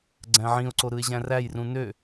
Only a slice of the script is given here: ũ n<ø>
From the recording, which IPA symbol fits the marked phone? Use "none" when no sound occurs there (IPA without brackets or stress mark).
ø